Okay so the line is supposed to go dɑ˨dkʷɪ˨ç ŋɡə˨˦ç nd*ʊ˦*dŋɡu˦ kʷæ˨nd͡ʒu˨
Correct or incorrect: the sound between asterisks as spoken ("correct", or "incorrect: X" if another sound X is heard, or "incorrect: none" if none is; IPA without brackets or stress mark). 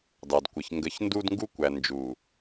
incorrect: u˦